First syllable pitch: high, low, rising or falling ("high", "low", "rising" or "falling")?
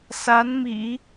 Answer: rising